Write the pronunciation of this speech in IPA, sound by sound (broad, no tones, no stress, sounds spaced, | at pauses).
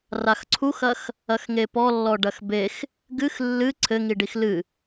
r a x ǀʰ u x ɐ x | ɐ x ŋ e p ɔ lː ɔ ɖ ɐ x b e x | ɡ ɨ x lː ɨ ǀʰ ɘ ŋ i ɖ i x l ɨ